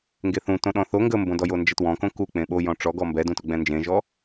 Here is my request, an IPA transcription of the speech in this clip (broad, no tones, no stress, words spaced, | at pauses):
ŋɡeθũ tõɗɔ̃θo ŋɡəmbõdɔ jond͡ʒətwɔ̃kõ ku k͡pẽɓo jɔ̃ʈ͡ʂɔɡɔ mbɛdũtʊ ɡ͡bɛ̃nd͡ʒẽʒɔ